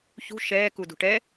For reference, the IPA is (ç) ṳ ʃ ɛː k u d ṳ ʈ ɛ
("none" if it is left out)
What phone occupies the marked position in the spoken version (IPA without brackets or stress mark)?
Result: ç